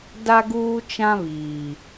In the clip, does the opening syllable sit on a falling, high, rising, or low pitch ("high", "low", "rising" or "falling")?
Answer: high